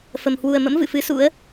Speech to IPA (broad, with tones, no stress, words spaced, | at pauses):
fə˨˩m hwu˨˩ə̯mə̰˧˥m vɨ̰˧˨fɨ˨˦sṵ˧˥ə̯